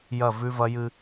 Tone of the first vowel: falling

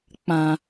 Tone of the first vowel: low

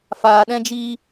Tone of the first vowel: low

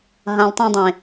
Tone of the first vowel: low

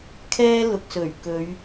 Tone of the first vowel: high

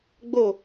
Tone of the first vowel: falling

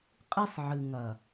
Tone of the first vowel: high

